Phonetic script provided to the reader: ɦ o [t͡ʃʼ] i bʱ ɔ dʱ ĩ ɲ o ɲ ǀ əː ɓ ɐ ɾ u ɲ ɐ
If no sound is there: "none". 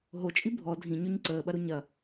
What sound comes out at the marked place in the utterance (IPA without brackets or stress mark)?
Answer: t͡ʃʼ